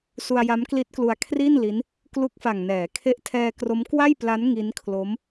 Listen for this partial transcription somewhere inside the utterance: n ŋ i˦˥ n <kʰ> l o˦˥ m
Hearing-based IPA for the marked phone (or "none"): kʰ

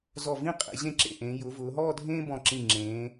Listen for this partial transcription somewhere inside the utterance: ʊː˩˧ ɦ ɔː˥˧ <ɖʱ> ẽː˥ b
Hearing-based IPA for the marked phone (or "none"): dʱ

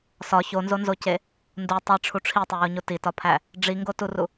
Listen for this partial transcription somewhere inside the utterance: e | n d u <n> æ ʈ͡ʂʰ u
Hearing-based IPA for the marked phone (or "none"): tˤ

